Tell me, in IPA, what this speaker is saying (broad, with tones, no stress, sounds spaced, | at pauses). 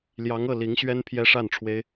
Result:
l j ɑ˧˥ ŋ ɤ˥˩ l i˧˥ ŋ ɕ ɥ ɛ˥ n pʰ j ɛ˥ ʂ a˥˩ n ʈ͡ʂʰ w e˥ ɪ̯